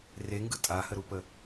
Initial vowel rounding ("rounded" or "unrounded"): unrounded